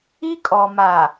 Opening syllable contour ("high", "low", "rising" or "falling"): high